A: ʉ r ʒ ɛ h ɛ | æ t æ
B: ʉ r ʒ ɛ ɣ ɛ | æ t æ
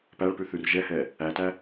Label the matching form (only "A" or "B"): A